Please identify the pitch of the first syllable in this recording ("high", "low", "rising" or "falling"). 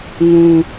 low